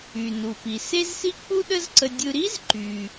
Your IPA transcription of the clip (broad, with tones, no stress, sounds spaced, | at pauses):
y˩ n u˩ p i˩ s e˥ z s i˥ k͡p u˥ ɗ ə˥ z ǀ ə˧ dʲ ɯ˧ ɾ i˥ z ǃ y˩